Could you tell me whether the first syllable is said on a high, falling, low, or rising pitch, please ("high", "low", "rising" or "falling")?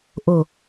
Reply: low